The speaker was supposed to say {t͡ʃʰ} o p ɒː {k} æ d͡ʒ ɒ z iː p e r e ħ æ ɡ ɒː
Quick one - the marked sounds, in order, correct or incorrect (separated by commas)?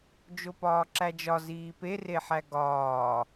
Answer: incorrect, incorrect